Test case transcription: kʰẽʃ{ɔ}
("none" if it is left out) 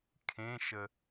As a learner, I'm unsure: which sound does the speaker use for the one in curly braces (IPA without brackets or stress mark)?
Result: ə